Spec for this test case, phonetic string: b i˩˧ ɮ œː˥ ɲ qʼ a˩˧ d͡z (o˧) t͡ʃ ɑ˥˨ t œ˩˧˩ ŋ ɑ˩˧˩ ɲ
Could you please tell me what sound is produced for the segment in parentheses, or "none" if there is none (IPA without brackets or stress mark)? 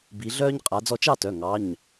ɔ˧